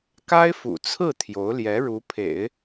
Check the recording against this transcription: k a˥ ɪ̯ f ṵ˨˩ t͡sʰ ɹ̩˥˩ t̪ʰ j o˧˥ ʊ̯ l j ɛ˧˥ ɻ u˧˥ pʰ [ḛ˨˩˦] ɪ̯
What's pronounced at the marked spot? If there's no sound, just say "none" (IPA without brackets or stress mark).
ḛ˨˩˦